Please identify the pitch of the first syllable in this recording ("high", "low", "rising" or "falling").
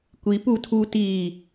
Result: rising